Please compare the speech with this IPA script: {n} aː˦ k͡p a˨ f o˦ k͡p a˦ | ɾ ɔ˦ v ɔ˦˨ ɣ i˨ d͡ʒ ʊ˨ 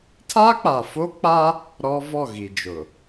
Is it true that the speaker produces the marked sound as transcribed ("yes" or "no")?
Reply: no